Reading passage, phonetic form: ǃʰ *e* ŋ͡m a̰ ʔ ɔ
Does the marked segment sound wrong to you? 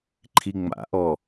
yes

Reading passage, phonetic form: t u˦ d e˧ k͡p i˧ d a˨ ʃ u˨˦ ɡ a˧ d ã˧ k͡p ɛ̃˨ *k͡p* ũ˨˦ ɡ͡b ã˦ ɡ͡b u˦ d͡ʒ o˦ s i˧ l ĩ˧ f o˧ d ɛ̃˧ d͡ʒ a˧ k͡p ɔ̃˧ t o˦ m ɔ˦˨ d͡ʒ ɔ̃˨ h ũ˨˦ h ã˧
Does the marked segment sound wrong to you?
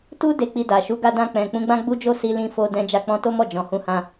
no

